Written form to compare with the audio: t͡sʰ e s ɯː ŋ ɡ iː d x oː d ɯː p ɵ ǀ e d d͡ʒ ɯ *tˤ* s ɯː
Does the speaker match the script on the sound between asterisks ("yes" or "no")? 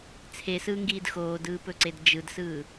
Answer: no